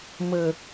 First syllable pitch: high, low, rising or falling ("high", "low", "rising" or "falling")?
high